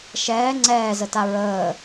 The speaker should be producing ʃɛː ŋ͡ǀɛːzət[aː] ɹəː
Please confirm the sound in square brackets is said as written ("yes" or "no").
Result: no